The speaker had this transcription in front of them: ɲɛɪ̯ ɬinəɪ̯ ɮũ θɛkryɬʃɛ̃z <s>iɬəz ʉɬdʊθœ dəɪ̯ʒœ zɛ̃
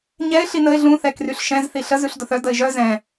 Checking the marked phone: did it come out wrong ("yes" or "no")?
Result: yes